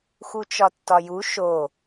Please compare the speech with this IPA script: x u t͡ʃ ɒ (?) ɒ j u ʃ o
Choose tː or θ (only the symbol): tː